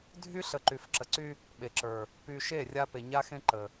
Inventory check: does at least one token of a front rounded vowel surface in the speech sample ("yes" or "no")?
yes